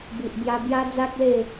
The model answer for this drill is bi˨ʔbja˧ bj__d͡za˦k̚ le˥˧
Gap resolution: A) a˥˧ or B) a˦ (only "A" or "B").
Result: B